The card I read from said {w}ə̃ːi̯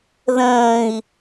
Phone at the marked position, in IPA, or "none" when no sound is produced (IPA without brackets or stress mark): ð